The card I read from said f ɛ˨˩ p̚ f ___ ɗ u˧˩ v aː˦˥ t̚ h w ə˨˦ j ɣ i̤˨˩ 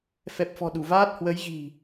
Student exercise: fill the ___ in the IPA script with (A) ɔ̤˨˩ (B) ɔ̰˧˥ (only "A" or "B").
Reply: A